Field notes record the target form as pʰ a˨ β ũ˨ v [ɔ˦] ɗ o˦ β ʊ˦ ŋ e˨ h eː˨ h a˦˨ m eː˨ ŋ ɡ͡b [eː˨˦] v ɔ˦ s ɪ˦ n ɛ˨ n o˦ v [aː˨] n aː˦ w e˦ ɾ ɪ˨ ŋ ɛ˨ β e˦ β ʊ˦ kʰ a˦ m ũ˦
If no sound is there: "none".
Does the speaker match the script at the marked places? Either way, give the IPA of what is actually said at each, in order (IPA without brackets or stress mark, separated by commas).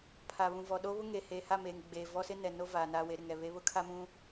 ɔ˨, eː˨, aː˨